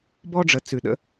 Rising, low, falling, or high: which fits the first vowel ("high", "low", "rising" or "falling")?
high